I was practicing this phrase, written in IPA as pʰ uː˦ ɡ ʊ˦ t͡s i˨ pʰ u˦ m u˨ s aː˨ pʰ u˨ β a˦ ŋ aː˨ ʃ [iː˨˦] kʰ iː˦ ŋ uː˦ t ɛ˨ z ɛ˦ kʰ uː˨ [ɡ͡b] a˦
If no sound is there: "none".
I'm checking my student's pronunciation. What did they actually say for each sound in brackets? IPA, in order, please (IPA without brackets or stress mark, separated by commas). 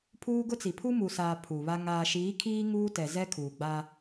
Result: iː˨˦, ɡ͡b